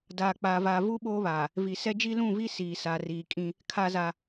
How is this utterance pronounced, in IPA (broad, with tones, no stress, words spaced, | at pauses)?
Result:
daː˨k͡paː˨vaː˨vu˦ ɓoː˦βaː˨ | vi˨sɛ˦ d͡ʒi˦lũ˦˨vi˦ siː˨sa˨riː˨kʼĩ˦ | kʰa˦za˦